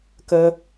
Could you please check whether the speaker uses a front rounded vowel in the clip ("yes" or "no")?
no